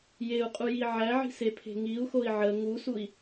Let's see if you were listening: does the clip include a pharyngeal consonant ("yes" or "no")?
yes